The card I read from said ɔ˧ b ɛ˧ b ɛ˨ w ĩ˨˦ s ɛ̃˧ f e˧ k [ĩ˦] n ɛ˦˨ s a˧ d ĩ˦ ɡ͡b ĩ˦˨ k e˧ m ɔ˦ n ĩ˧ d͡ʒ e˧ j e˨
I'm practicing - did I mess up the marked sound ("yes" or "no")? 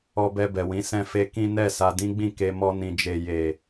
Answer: no